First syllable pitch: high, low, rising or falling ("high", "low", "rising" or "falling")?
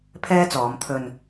high